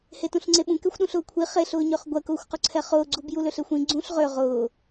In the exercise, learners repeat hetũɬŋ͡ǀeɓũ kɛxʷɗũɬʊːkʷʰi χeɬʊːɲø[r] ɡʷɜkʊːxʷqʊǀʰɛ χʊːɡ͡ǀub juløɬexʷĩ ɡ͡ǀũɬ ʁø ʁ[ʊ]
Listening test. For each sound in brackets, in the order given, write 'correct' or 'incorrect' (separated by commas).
incorrect, incorrect